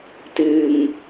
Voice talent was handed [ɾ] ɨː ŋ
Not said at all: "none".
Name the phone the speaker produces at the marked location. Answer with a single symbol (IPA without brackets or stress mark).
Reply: t